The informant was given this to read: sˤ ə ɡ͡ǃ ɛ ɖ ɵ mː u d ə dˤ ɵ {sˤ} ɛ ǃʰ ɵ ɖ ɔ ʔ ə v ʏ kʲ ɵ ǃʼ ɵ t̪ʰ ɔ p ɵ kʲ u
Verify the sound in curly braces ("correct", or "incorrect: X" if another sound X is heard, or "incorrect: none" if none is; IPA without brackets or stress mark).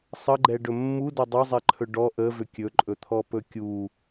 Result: incorrect: zˤ